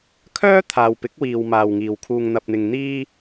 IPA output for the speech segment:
kʰ œː˥ t̪ʰ aː˨ w p ɪ˨˥ k̚ w iː˨ w m aː˨ w ŋ iː˨ w kʰ uː˧ ŋ n̪ ɐ˧ p̚ n̪ ɪ˧ ŋ n̪ iː˥

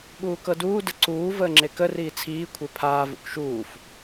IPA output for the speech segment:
ɓ uː k ɤ d uː d ə ǀ uː v əː ŋ͡ǁ e k ə r iː t͡sʰ iː kʷʰ e pʰ aː v ṵ k ʃ uː f

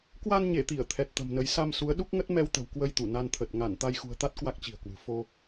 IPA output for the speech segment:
k w a˧ n ɲ e˧˩ t̪ i˧˩ ə̯ t̪ʰ ɛ˨˩ t̚ t̪ ə̤˨˩ m n ə˨˦ j s a˧ m s u˨˦ ə̯ ɗ u˦˥ k̚ ŋ ə˦˥ t̚ m ɛ˧ w t̪ ə̤˨˩ w k w ə˧ j t̪ u˧˩ n a˧ n t̪ʰ ə˨˩ t̚ ŋ a˧˩ n t̪ a˧ j x ṳ˨˩ ə̯ t̪ a˦˥ t̚ k w a˦˥ k̚ t͡ɕ i̤˨˩ ə̯ k w ɨ̤˨˩ f o˧

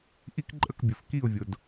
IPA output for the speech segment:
ʔ i˦ k ǃʼ ə˦˨ k bʲ ʊ˨ f k i˦˨ ʊ̯ vʲ ʊ˨ d

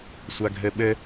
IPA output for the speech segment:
sʷ a ɡʱ ɘ ɓ ɘ

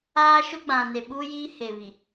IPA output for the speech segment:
aː˦ ʃ ʊ˦ ɡ͡b ã˨ n e˨ ɓ uː˦ j iː˦ h e˨ β i˨

